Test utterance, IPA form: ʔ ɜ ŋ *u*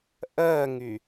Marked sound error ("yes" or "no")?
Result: yes